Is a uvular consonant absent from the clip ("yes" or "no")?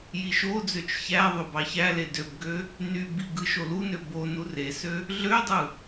yes